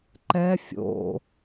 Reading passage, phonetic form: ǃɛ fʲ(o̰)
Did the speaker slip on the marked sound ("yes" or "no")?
no